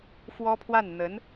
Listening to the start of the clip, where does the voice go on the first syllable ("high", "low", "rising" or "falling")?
high